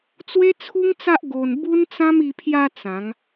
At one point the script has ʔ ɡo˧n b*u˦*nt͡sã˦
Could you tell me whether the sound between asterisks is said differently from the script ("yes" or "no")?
no